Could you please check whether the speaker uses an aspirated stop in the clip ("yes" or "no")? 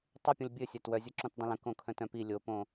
yes